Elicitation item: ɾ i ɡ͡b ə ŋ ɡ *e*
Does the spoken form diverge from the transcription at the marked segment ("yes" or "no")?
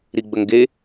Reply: no